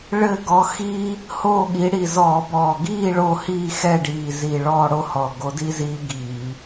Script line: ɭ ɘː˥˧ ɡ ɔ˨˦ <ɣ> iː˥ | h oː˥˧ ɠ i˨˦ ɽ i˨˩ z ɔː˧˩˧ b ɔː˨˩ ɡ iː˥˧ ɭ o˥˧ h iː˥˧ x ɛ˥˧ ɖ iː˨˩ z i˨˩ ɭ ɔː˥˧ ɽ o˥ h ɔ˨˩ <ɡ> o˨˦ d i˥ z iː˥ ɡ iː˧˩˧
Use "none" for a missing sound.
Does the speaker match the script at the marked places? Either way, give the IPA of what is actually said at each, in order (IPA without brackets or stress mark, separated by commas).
x, ɡ